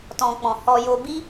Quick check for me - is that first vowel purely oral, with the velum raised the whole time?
no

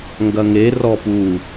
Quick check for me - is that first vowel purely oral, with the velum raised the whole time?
yes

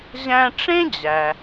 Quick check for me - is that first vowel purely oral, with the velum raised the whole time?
no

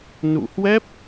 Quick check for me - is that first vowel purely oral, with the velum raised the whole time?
yes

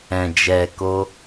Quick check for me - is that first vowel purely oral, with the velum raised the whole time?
no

